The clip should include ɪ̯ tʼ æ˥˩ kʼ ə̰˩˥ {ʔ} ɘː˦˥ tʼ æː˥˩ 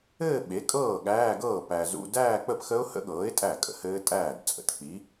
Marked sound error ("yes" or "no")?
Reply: yes